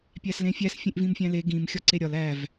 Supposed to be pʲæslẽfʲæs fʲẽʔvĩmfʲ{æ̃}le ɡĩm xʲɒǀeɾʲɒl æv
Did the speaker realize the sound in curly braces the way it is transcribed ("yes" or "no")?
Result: yes